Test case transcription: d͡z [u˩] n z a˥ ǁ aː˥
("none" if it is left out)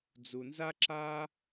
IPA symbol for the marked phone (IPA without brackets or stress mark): u˩